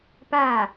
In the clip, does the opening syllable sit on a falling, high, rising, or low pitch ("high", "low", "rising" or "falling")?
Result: falling